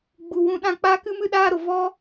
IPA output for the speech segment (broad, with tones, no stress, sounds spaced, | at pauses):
ɡ͡b u˨ w ũ˧ ɗ ã˦˨ k͡p aː˦ k ɨ˦ m ɨ˦ ɗ aː˦ ɾ o˨ v ɔ˦